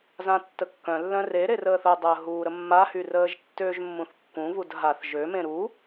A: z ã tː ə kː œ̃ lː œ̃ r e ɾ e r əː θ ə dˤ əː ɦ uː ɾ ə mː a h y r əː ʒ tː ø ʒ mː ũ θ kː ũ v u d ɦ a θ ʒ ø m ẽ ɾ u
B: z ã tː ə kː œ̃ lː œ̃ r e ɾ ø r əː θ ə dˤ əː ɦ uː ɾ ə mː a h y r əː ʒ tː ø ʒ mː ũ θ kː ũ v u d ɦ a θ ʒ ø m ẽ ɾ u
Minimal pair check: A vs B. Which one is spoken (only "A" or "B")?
A